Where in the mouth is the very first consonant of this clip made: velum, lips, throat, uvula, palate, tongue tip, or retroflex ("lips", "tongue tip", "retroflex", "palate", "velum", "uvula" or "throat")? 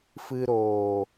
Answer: lips